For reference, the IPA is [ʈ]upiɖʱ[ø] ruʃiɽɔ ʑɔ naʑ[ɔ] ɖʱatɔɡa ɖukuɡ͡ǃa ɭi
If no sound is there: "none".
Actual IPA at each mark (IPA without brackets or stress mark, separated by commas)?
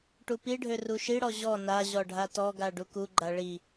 ʈ, ø, ɔ